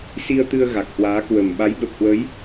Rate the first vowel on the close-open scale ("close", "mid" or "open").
close